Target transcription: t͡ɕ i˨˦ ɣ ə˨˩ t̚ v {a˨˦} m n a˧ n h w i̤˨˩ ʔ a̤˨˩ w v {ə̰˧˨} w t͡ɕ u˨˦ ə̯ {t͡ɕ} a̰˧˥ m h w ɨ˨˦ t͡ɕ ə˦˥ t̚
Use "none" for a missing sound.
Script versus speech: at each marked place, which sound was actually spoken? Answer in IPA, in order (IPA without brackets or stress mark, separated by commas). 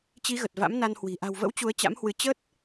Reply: a̰˧˥, ə̰˧˥, t͡ɕ